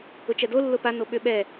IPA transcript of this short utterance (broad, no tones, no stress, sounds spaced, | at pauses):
ʊ t͡ʃ ɛ d o lː ʊ p a n o ɓ ʏ ɓ ɛ